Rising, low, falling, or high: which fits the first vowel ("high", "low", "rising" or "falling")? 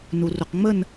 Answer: low